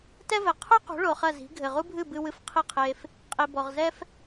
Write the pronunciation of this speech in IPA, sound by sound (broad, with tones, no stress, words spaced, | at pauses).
tɛ˥vɛ˩ qʰu˥ qṳ˩˥ɭo˩ χɐ˥˩zi̤˩˥ ɡʱɘ˩ʁu˥bʱɨ˥˩bɨ˧ wɨ˧f qʰi˥˩qʰe˧f | qʼi˩bɔ˩ʁzɛ˥f